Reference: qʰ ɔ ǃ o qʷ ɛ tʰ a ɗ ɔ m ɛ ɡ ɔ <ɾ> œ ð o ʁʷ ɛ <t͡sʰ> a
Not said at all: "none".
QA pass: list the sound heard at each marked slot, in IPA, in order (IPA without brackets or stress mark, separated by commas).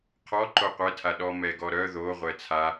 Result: ɾ, t͡sʰ